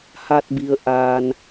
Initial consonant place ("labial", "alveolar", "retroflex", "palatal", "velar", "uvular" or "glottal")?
glottal